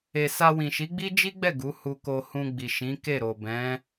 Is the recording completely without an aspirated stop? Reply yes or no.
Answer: yes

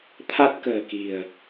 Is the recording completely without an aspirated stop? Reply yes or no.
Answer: no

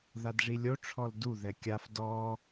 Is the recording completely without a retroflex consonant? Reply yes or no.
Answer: no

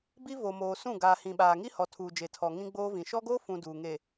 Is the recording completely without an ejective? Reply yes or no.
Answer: yes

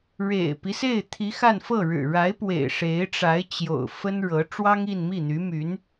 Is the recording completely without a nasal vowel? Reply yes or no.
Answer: yes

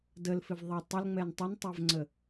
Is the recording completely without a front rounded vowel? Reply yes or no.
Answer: yes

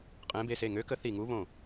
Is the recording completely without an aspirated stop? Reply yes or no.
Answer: yes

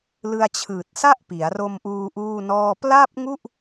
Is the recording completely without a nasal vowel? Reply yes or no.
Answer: yes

